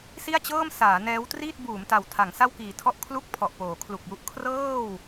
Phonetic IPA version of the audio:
si˥˩a̯t͡ɕɤː˥˩m saː˩˦nɛː˦˥wtriː˥˩t̚buː˩˦m ta˨˩w tʰa˩˦ŋsa˥˩wkiː˨˩tʰɔ˥˩ʔ kʰlu˥˩k̚ pʰɔ˨˩ʔpoː˩˦kʰlu˨˩k̚ju˥˩ʔ kʰrɤː˥˩w

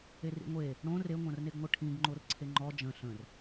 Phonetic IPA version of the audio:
erḭŋʷe | ɽõ reŋʷɐ̃rneɡŋʷɘ ʈʰĩɡŋ͡ǃor ǀʰeŋ͡ǃɔ d͡ʒə̃ ɬə̃r

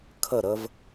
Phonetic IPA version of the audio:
kʰə˦˨ɾə˦v

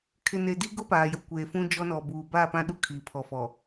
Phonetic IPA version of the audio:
kʰɪ˨ne˨di˦ɡʊ˦ paː˨jʊ˨kʷeː˨fũ˦ d͡ʒɔ˦nɔ˨buː˨ baː˦˨pã˦ ɗu˦kʰi˨ pʰɔ˨fɔ˨

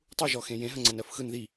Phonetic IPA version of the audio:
tˤuʒɔxẽ jẽɦəŋ͡ǀɜn ɜfxɯn ði

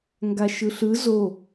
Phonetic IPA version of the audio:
ŋɡaʃɯɬɯ zo

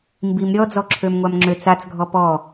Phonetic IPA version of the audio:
mbim ɾʲɔ d͡zɔǁʰømŋʷamŋ͡ǁø t͡sat͡sɡʱɔ pɔ

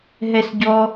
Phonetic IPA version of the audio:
ɦɛsɟɔ

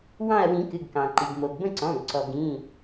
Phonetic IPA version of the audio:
wɑ̃˦˨ɐ̯wĩ˨˩˦kɨ˩˧˩ɡkɑ̃˩ ǃi˩ɡmo˩ɡbə̃˦˨ ǀɔ̃˩˧˩ɡ ǀɔ˩ɡĩ˩˧˩

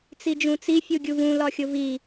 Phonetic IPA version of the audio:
t͡sid͡ʒũt͡si fʲuɡʲuvũ lɒxʲovi

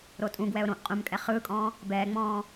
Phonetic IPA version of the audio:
ɾotʼũɡwɛʊ̯ ɾõʔ qʼũmkʼɛ χɯːkʼɔ̃ː | bɛːŋ͡mɔ̃ː

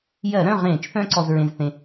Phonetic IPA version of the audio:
jɜ˧˩˧ɾœ̃˥˨ʁẽː˧˩˧t͡ʃθœ̃˧ ǀɔ˧zɹẽ˧zθẽ˧

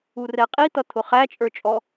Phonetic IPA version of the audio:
urɛqʼi t̪ʌt̪ʰʊχæ t͡ʃʼə˞t͡ʃʼɔ

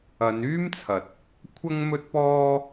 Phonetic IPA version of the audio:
ɐ˨˧n yː˥mt͡sʰɐ˨t̚ | kʷʰɐ˥ŋmɵ˥t̚pɔː˥

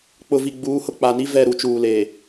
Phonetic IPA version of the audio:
k͡pʊ˨vi˨ ɡ͡buː˨˦hʊ˦k͡pa˨ni˦ vɛ˦˨ɾu˦t͡ʃuː˨ leː˨

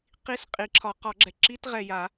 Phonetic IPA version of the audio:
qi˧˥˧s qʼi˨˩˦ǁʰɒ˨˩˦ qɒ˨˩˦ɡ͡ǁɛ˨˩ ǁi˧˥˧tʁɛ˨˩ja˨˩˦

